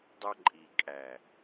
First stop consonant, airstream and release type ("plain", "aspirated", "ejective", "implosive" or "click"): plain